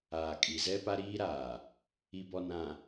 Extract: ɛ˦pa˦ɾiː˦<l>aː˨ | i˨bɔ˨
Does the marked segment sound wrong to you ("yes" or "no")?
yes